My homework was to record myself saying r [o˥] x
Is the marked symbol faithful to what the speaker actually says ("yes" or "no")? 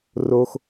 yes